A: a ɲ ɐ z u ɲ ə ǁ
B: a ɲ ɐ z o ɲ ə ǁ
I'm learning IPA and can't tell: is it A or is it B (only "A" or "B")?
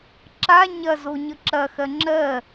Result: B